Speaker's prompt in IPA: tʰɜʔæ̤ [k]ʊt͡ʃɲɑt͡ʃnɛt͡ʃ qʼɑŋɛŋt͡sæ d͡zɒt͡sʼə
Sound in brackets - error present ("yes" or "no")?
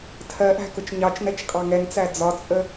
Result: no